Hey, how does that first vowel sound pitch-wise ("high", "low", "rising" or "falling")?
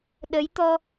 rising